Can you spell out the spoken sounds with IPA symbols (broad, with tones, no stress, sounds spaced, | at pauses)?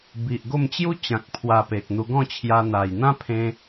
b i˨ ʔ ɡ o˥˧ m t͡ɕ j u˦ t͡ɕ ã˨ k̚ pʰ w a˧ p e˨ k̚ n̪ u˧ ɡ ɔ̃˥˧ t͡ɕʰ j a˧ n̪ a˨˩ j n̪ ã˦ pʰ ẽ˧